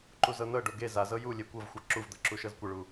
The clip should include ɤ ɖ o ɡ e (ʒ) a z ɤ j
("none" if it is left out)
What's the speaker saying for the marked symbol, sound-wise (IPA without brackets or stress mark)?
z